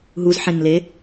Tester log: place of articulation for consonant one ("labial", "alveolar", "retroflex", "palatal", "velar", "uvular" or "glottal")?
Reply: glottal